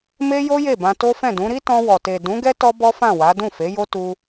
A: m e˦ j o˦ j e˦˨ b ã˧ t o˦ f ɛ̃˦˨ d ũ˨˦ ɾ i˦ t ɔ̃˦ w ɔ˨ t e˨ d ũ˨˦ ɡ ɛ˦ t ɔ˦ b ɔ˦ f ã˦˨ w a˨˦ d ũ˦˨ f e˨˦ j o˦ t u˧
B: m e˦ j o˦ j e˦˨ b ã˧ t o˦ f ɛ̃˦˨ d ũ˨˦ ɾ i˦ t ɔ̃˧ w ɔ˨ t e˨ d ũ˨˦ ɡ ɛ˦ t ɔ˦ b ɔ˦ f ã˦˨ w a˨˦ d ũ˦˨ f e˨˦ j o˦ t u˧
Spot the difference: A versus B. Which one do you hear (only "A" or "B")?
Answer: B